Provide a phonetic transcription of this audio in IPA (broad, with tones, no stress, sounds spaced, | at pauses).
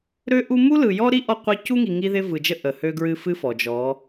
ɾ ø˦ ʔ u˦ m u˦ l ɯ˨ j ɔ˦ ɾ i˦ ʔ ɔ˦ qʷ ɛ˦ c u˦ ŋ i˨ ŋ i˦ ð ɪ˦ v ɯ˨ d͡ʒ ə˦ ʔ ə˨ h ø˦ ɡ ɹ ɨ˦ f ɨ˦ f ɔ˨ d͡ʒ ɔ˨˦